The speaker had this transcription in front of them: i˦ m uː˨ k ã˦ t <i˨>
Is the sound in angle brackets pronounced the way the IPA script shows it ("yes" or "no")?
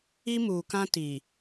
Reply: yes